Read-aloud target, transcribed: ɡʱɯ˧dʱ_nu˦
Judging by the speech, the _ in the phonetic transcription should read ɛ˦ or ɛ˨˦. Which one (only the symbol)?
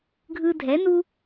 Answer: ɛ˨˦